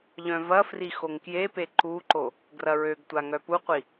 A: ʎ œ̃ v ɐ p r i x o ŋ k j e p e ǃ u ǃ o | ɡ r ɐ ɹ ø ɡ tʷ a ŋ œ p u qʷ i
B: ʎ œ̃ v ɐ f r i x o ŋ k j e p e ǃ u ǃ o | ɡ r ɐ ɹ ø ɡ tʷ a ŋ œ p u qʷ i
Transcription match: B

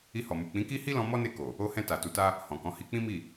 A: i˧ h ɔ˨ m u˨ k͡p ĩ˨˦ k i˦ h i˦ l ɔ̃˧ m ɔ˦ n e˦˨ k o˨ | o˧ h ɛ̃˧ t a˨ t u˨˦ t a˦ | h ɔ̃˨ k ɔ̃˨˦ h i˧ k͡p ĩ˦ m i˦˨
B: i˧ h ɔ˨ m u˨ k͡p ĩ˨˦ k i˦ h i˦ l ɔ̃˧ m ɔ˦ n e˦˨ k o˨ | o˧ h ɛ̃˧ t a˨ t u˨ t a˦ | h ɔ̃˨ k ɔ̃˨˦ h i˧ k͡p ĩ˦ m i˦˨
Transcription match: A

